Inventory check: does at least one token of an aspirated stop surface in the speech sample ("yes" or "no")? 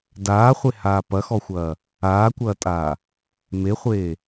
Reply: no